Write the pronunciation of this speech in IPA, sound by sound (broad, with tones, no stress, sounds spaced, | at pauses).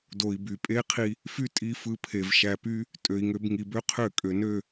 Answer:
d o˨ i̯ b y˨ pʼ e˦ qʰ i˧ | f y˦ tʼ i˧ f ɯ˧ pʰ e˨ v ʃ æ˨ p y˧ | tʼ ø˨ i̯ ŋ ø˧ b ŋ i˨ b ø˦ qʰ ø˦˨ kʼ ø˨ n ø˦˨